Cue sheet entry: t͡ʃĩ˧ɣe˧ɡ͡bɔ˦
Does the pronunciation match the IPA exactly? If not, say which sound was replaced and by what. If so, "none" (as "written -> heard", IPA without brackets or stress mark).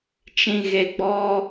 none